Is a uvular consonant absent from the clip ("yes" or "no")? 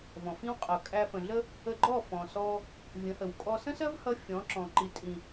no